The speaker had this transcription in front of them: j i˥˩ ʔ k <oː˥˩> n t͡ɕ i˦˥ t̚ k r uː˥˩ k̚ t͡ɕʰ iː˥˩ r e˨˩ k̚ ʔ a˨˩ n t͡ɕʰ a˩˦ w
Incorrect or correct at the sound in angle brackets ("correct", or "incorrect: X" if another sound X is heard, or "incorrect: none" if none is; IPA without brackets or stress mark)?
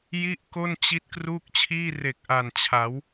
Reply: incorrect: o˥˩